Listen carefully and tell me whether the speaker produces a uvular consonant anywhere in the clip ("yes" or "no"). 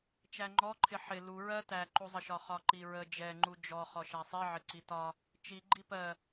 yes